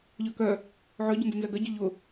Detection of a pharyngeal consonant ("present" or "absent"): present